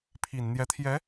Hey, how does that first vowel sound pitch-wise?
low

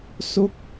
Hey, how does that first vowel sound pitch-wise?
falling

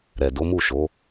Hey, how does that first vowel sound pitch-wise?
low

